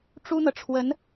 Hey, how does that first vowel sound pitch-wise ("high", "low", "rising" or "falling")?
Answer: high